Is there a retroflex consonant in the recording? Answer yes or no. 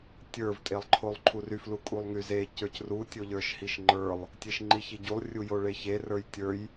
yes